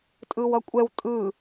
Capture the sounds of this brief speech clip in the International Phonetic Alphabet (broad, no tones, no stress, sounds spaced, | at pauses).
tʼ ɯ w ʌ kʷʼ ɛ w tʼ ɯ